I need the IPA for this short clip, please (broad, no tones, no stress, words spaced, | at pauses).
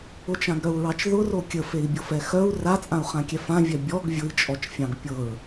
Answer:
ʊt͡ʃãɡɾœu̯ɹɑt͡ʃ ðʊro kʲəfei̯bʲɤfɛ xœu̯ rat͡sʼãu̯χãkʲɛf ãvʲœ bʲɔɡ vʲʊi̯t͡ʃʼɔt͡ʃfʲɑ̃ɡ pʲɤɹ